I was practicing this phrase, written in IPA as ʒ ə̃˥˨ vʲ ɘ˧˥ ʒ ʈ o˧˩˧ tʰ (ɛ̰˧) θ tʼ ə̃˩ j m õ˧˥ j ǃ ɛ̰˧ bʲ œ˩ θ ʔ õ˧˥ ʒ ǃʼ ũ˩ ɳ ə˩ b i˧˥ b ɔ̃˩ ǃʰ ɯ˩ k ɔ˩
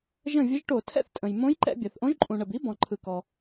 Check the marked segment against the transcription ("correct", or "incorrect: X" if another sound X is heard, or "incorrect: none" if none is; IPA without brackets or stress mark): incorrect: ɛ̰˥˨